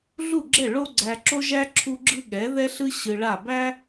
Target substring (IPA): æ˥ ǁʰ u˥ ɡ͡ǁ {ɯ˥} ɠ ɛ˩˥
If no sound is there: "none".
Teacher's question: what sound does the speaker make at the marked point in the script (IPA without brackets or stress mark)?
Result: ɯ˥